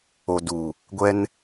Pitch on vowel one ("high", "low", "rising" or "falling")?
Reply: low